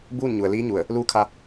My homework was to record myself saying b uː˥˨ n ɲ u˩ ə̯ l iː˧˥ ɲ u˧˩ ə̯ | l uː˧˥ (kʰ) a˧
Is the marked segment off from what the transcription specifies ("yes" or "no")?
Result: no